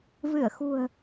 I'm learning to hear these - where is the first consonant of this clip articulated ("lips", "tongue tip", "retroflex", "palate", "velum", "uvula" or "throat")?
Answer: lips